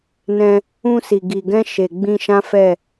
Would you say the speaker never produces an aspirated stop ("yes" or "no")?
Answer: yes